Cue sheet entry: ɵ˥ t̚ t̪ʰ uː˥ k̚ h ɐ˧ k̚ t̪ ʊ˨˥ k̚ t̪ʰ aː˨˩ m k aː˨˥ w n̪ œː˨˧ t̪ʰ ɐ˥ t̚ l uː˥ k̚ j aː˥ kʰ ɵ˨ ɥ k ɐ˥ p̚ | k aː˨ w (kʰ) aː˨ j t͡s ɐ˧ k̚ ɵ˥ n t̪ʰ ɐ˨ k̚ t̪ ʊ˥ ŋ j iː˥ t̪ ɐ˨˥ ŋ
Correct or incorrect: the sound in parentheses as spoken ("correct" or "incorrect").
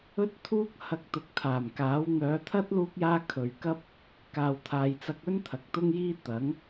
incorrect